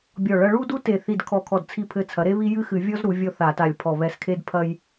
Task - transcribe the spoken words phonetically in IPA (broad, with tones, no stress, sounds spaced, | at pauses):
bʲ ɔ˧˩ ɭ ɐ˦ ɭ u˦ d u˦ t e˧˩ θ i˧˩ d kʰ ɔ˧˩ kʰ ɔ˧˩ d t͡sʰ i˧˩ pʰ ɘ˧˩ t͡sʰ ɐ˩˧ ɾ e˦ β i˦ j ɨ˦ x ɨ˧˩˧ vʲ ɔ˦ z ɾ u˩˧ vʲ ɔ˦ θ a˧˩˧ t a˧˩ lʲ pʰ ɔ˧˩ β ɛ˧˩ s kʰ e˦ d pʰ ɐ˦ j